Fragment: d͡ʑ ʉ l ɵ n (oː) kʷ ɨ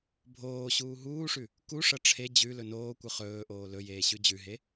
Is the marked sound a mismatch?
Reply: no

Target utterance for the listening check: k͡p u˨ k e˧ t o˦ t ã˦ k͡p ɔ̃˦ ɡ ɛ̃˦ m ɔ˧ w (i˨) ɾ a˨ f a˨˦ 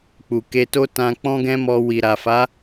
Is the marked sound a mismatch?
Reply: no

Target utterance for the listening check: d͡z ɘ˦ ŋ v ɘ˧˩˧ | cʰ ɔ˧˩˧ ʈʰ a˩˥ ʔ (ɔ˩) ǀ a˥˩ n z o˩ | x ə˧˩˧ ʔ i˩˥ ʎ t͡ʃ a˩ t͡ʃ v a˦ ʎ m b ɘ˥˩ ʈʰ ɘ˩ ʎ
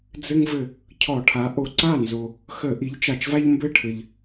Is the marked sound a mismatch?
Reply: yes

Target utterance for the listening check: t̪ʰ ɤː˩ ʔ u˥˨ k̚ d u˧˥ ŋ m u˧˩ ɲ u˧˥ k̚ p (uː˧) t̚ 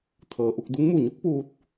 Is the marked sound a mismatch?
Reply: no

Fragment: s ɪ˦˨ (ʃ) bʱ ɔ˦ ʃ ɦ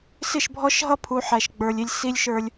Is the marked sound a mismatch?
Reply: no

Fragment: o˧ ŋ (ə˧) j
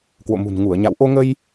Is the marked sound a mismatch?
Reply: no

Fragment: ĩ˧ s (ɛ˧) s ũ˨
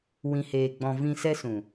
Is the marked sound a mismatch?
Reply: no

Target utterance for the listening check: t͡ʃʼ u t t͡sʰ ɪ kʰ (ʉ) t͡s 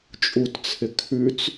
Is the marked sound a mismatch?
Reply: no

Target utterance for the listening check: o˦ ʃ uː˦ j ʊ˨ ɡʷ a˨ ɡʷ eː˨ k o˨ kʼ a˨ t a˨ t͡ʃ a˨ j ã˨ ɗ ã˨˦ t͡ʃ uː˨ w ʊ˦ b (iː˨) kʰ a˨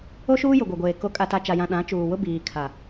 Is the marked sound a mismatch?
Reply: no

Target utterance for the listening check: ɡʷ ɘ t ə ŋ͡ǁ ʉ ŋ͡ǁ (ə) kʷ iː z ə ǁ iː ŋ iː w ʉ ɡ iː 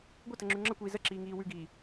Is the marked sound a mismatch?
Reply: no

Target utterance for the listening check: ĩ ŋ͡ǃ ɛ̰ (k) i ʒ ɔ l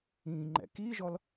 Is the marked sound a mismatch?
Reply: no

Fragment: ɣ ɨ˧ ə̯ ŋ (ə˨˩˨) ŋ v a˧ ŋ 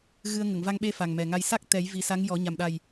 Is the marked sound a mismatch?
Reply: no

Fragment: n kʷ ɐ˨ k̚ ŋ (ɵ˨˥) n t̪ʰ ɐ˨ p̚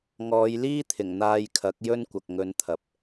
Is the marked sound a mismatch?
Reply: yes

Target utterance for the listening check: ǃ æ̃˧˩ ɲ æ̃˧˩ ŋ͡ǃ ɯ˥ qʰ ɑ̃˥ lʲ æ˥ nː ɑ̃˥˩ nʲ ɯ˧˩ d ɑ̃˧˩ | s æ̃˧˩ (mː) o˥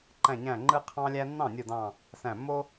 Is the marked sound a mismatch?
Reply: no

